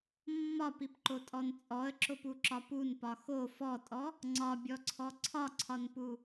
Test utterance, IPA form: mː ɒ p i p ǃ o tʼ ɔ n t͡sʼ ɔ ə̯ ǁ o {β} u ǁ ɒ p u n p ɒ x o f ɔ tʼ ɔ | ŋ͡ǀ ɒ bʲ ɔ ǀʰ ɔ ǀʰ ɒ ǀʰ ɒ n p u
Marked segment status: incorrect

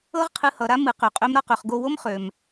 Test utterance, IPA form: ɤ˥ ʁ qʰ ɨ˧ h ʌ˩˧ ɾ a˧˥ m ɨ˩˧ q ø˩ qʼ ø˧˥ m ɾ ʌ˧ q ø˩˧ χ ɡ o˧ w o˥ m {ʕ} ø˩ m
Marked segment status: incorrect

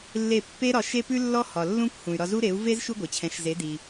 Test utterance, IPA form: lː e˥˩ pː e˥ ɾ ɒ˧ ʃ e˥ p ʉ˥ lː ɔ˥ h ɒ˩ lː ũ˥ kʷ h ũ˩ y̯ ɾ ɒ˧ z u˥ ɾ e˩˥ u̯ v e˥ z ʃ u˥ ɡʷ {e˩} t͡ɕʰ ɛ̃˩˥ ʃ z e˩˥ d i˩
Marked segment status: correct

